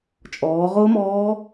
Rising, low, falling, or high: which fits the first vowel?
rising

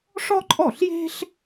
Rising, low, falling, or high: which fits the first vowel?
high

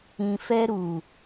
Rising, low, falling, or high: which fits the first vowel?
low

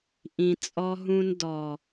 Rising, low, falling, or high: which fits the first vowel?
low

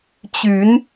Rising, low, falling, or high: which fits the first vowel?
rising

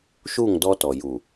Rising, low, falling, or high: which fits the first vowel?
falling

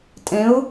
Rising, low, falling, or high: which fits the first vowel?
rising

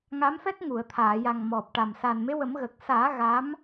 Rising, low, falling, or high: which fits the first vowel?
rising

